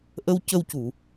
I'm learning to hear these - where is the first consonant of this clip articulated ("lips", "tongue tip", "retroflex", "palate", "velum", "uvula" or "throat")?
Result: throat